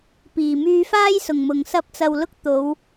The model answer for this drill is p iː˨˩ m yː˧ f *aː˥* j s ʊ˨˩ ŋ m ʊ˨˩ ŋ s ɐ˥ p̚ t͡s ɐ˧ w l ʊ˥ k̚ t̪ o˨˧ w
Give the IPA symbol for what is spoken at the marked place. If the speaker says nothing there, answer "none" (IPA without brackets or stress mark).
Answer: aː˥